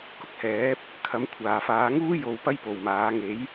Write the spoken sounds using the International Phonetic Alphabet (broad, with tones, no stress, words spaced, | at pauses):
kʊ˥k̚hɛː˨˥p̚ | kʰɐ˨˥mkʷʰaː˨faː˨˥ ŋuː˥ jo˧wpɐ˥j po˨˩wmaː˨˥ ŋe˨˥j